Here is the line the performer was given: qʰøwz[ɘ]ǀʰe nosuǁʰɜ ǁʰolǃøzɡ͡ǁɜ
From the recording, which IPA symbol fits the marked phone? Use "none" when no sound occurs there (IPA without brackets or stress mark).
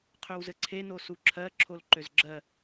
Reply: ɘ